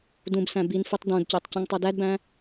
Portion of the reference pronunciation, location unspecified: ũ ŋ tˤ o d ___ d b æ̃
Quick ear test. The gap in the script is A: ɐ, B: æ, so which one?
B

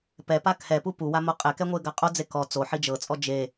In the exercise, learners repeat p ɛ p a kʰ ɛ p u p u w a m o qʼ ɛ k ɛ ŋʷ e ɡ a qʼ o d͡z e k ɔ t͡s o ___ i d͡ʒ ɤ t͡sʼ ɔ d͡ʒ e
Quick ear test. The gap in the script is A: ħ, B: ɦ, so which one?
A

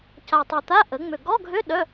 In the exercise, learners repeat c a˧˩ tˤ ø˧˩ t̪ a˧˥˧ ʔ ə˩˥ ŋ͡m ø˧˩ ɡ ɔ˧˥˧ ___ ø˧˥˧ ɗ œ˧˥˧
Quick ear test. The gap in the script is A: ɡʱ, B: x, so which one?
A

